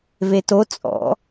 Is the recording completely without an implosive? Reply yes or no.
yes